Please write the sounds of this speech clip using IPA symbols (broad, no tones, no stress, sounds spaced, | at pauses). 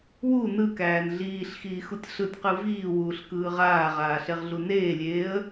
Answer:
w u n ɯ k æː n ɮ iː ɬ x iː x u tʲ ɬ ɯ tʲ q ɯ v iː w uː ɬ k ɯː ʁ aː ʁ aː ɬ e ʁ ɮ u n eː lʲ eː ə̯